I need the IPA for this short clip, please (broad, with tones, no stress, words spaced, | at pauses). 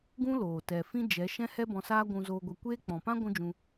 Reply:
ɡũ˦loː˨ tɛ˨fĩ˦ d͡ʒɛ˨˦ ʃɛ̃˦hɛ˦bɔ̃˧saː˦ ɡʷũ˧zoː˧ɡʷɛ˧kʷeː˦ k͡pɔ̃˨pã˦ ɡʷũ˦d͡ʒũ˧